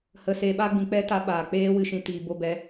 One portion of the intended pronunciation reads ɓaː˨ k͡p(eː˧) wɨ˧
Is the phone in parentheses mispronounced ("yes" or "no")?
yes